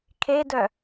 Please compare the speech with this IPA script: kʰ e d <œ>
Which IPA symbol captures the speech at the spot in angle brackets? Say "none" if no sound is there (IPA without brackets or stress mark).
œ